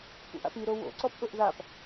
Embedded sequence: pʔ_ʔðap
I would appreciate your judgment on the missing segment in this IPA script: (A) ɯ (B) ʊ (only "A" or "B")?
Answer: B